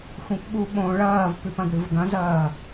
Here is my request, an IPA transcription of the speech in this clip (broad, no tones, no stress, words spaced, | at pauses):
xʷĩpɓuɓõ ɭɐːvpʉpɐ̃ɡ ɽɨvɡɐ̃zɐː